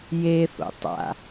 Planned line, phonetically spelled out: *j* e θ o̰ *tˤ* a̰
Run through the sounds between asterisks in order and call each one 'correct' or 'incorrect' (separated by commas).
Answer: correct, correct